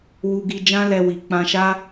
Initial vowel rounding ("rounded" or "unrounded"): rounded